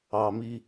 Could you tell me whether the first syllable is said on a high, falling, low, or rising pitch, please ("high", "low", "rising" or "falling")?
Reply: low